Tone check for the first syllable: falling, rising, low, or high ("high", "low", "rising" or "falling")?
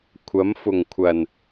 rising